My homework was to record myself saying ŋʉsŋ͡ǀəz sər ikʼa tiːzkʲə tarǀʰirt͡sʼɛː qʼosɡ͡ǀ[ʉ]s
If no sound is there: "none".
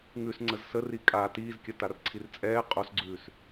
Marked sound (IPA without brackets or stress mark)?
ʉː